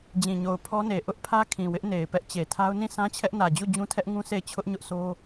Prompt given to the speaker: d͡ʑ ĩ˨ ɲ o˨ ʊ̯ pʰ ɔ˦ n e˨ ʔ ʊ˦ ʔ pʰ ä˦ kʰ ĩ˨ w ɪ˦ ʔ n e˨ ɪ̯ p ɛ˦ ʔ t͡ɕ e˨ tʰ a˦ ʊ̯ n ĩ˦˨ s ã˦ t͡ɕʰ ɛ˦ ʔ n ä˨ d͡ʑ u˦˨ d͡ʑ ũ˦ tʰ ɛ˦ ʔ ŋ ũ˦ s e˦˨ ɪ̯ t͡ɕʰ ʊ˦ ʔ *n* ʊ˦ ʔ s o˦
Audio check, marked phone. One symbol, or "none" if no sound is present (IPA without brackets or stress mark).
ɲ